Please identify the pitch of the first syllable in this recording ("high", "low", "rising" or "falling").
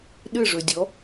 falling